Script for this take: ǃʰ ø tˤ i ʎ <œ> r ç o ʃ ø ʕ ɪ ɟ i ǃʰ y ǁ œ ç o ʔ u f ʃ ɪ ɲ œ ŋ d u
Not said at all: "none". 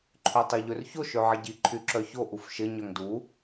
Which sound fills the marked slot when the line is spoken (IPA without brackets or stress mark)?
ø